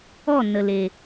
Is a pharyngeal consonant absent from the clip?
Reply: yes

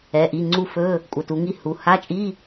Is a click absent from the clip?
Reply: no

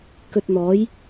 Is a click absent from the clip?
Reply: yes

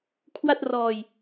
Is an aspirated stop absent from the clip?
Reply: no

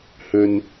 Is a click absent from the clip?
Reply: yes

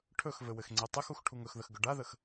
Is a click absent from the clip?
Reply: no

